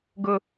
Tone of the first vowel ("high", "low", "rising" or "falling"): high